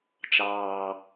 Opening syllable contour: low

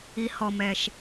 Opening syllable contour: low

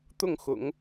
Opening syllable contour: falling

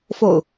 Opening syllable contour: low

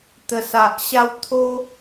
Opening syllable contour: low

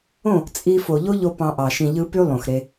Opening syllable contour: falling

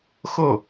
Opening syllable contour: falling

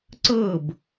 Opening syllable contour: falling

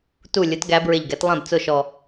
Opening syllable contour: falling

